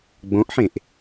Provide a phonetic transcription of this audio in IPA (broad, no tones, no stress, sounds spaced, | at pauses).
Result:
ɡ͡b õ ʔ ħ ẽ ʔ